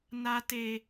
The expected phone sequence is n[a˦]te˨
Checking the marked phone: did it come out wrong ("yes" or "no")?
yes